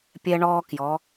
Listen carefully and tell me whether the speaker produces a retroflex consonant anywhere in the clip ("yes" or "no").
yes